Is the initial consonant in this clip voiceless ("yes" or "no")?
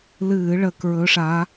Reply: no